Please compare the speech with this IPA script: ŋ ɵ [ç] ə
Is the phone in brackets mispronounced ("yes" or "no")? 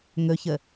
no